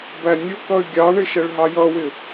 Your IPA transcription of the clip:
b æ nʲ ʊ k ʌ y̯ ɡʲ ɑ ɳ ɪ ʃ ɛ ɭ ɦ ɑ j ʌ w ɪ

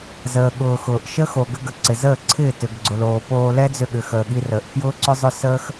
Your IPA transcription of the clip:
z əː˨ ɠ ʊː˨ x ʊː˨ ʔ ʃ ə˦ x o˨ ɡ ʏ˧ ɡ ə˨ ǀ ɪ˨ z əː˦˨ ǀʰ ɪː˦˨ t ʏ˨ ɡ ɡ͡ǀ ʊ˨ l oː˨ p oː˧ l ɛ˦ d͡z ʏ˧ ɠ ʏ˨ x əː˨ ɠ i˧ r əː˨ ʔ f j ʊː˦ ǀ ʏ˦ zˤ ʏ˦ s əː˦ x

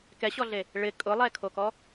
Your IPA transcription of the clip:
k ɛ ɕ ɔ ɮ e | ɭ ɪ kʼ ʊ lˠ ɛ kʰ o k ɔ

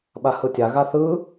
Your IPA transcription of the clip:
ɓ a h ɯ tʲ a ɣ a θ ɯ

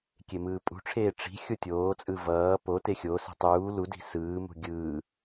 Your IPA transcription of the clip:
kʲ e m ɯː pʼ ṳ ʈ͡ʂʰ eː ʈ͡ʂ i̤ xʲ o tʲ oː t͡sʼ ɯ v ʌː p o t e xʲ o s i̤ tˤ uː l u d i̤ s ɯː m ṳ ɡʲ ɯː

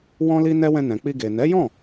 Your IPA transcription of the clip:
w ɔ̃˦ l i˦ n ɛ˦ w ɛ̃˧ n ɛ̃˨ k͡p i˧ ɡ e˨ n ɛ˨˦ j ɔ̃˦˨

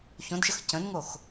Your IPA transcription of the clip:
ç õ d ʃ ə x c ə̃ n ŋ o x

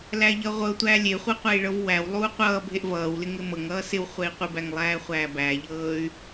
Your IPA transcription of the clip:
l æ ʎ ʌ ʁʷ ɤ tʷ æ lʲ e χʷ ɤ qʷ æ i̯ ɭ ɤ v w æ w lˠ uː qʷ ʌː bʱ e ʔ v ʌː w l ɪ ŋ ɪ m ɤ ŋ ʌː s ɪ w χʷ ɛ i̯ qʷ ɪ b æ ŋ lˠ æː χʷ æː b æ ʎ ɤː y̯

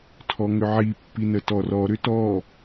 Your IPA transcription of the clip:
tʰ ɔ ŋ ʏ ʕ i pː i n ə t ɔ r ɔ ɾ ʏ t ɔ

